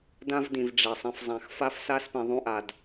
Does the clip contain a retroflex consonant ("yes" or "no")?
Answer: yes